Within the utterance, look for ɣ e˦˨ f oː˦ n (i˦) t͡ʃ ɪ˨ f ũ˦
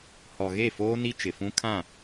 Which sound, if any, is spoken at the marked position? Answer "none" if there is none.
i˦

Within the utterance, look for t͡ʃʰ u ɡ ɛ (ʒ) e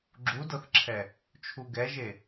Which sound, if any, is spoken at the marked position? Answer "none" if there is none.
ʒ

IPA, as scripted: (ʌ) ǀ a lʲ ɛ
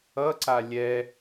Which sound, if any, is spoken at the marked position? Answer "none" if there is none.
ʌ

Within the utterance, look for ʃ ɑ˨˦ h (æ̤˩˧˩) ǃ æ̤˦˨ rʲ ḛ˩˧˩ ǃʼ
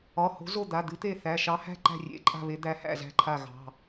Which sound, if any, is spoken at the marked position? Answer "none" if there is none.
æ̤˦˨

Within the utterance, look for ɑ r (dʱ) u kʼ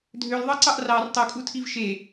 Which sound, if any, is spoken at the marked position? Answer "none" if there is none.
tˤ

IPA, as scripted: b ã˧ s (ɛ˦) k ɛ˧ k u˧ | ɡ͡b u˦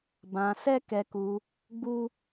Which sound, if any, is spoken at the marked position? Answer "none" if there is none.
ɛ˦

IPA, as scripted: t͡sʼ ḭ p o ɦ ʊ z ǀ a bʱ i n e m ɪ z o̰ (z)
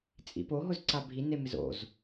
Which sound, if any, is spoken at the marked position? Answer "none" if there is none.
z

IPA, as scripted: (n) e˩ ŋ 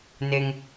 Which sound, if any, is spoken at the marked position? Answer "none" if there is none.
n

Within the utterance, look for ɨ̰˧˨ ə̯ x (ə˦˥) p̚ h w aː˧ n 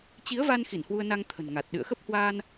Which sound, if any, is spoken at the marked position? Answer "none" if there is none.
ə˦˥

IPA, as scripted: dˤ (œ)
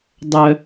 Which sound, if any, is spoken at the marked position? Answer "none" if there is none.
œ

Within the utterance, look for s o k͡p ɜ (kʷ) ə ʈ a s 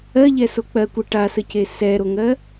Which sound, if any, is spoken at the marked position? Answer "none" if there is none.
kʷ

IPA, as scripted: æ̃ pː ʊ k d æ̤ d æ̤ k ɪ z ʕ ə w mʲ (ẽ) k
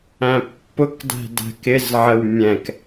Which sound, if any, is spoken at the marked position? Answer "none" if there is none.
ɛ̃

